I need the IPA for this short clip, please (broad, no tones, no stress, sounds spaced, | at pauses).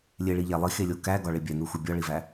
lʲ e ɭ i ʎ æ lˠ i x e lʲ o k æ ɡ ɒ ɭ e bʲ æ n u x u bʲ ɒ ɭ i v æ